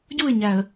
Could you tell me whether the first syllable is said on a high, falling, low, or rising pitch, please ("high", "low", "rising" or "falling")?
falling